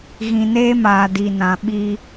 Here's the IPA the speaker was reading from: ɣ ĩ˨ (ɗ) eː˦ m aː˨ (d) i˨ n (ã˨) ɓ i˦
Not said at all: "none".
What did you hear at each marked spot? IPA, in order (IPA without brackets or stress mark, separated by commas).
n, d, ã˨